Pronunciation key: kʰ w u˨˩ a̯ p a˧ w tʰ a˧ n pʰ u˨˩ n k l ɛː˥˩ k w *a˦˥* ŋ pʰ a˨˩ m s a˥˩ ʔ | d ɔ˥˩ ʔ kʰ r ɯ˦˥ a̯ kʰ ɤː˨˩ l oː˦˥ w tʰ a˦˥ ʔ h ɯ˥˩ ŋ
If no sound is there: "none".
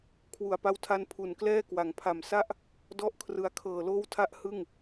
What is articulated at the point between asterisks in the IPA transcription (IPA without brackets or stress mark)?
a˩˦